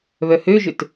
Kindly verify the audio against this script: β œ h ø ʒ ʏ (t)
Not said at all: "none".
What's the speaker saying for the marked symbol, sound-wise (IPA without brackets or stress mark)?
t